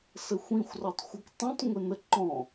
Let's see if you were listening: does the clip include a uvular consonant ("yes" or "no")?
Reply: no